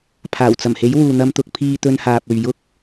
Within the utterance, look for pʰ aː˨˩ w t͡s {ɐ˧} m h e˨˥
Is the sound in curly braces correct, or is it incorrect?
incorrect